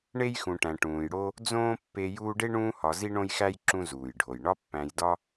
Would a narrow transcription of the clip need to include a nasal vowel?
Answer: yes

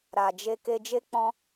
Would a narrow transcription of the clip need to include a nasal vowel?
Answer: yes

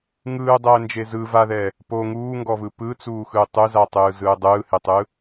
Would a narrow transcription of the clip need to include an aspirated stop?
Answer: no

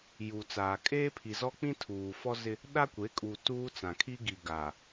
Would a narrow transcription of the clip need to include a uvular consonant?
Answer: no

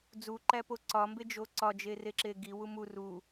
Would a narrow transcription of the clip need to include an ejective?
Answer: no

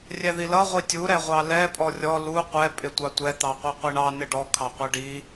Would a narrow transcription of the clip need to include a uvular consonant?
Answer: yes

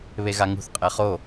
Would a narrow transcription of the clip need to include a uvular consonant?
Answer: yes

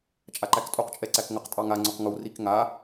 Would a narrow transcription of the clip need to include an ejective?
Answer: yes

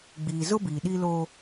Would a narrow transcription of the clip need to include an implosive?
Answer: yes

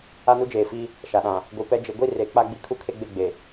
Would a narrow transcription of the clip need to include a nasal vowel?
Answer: yes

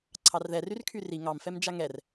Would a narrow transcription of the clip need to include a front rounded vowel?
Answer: yes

